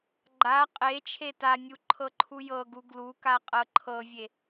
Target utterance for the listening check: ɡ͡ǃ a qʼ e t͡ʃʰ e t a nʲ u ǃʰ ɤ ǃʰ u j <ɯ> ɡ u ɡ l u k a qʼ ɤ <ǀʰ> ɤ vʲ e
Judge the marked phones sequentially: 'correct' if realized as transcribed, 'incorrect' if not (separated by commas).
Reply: incorrect, incorrect